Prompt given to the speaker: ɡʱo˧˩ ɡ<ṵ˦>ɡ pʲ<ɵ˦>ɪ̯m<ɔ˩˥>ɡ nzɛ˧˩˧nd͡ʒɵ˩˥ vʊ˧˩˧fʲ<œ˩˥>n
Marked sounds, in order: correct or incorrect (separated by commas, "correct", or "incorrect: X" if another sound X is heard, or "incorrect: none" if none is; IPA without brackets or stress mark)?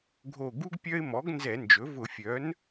incorrect: u˦, incorrect: œ˦, correct, correct